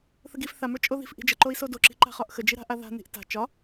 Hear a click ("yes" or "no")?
yes